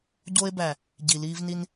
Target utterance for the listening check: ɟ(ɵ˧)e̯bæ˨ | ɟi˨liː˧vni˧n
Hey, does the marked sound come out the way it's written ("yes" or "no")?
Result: no